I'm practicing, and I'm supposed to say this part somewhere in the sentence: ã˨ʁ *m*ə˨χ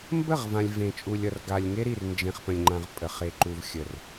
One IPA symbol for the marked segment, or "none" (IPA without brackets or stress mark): pʼ